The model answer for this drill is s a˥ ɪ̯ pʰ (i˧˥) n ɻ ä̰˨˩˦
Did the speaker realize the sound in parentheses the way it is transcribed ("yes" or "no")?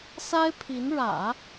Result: yes